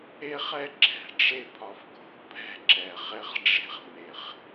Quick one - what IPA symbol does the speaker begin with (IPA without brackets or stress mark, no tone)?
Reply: e